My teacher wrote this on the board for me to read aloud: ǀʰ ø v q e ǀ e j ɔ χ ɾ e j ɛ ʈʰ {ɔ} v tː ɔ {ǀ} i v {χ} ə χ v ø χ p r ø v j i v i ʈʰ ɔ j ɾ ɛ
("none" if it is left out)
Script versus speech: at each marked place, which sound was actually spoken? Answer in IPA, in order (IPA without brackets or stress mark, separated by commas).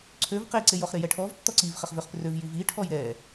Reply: ɔ, ǀ, χ